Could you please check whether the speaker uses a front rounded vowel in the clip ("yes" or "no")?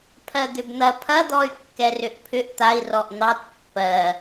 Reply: yes